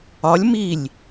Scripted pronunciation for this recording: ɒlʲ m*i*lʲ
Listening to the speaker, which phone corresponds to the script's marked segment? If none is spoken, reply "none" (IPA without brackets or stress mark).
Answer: i